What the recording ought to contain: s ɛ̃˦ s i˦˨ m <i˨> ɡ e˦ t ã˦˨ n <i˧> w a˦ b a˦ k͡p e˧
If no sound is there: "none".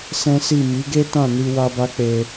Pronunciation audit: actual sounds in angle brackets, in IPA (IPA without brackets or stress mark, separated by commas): i˨˦, i˧